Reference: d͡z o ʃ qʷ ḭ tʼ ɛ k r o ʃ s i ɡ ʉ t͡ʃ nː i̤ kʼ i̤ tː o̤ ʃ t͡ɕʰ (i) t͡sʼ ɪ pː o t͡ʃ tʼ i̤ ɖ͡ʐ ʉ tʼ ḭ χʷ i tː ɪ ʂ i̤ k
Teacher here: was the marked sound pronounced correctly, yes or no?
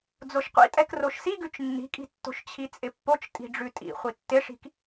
yes